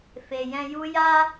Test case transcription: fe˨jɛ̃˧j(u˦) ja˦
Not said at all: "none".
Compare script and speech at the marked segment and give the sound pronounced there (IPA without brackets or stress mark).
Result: u˦